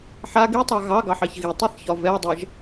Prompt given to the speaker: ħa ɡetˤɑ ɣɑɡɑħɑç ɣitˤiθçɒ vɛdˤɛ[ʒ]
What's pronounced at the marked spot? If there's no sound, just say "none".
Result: ʒ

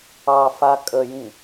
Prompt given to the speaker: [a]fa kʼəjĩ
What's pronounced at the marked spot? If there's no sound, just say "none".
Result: ɑ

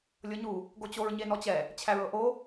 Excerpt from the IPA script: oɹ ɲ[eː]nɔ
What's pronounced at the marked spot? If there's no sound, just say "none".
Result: e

